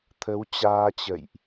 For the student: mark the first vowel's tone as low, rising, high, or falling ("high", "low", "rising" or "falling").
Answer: rising